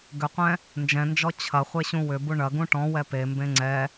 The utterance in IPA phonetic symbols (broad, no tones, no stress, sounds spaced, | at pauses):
ɡ ʏ qʷ ɛ̃ | n d͡ʒ ɛ̃ n d͡ʒ ɔ t͡ɕʰ ɐ χʷ e ɕ ũ w ʏ b u ɳ ɐ ɡ ũ ʈ ɔ̃ w ɛ p e m b ẽ ŋ͡ǀ ɛ